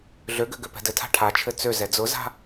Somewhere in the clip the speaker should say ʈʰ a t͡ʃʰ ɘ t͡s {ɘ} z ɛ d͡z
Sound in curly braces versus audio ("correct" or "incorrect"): incorrect